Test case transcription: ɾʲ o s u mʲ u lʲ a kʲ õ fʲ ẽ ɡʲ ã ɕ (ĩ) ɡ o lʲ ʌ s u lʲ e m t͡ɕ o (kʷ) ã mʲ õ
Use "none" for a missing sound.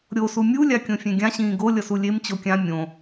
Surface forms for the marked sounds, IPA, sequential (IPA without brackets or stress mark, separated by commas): ĩː, kʲ